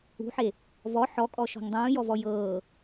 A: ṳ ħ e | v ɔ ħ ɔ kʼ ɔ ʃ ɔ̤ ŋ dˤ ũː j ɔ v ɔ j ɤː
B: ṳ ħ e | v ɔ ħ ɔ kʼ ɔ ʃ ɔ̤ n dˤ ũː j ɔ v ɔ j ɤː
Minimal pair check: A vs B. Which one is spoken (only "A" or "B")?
A